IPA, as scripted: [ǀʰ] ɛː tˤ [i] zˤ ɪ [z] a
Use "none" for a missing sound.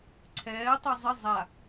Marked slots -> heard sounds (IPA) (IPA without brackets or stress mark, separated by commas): ǀʰ, i, zˤ